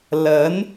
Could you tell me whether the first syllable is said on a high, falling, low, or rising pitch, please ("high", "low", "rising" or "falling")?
rising